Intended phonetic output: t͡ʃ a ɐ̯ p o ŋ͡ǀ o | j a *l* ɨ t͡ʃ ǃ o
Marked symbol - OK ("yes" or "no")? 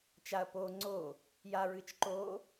no